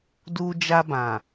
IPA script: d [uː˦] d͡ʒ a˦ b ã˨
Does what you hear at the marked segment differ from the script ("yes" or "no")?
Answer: no